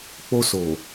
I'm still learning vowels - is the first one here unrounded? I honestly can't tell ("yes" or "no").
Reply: no